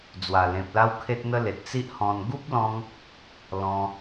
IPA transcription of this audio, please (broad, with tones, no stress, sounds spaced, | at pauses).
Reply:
d͡z w a˨˩ l ẽ˨ p̚ l a˦ w kʰ e˦ t̚ n̪ ə˦ l e˨ t̚ t͡s i˦ ʔ h ɔ̃˧ n ɡ u˦ p̚ l ɔ̃˧ ŋ | l ɔ̃˧